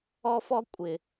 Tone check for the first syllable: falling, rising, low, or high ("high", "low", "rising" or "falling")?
high